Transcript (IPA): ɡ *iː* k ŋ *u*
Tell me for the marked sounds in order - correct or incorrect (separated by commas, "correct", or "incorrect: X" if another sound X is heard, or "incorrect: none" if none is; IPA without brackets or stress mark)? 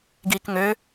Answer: correct, incorrect: ø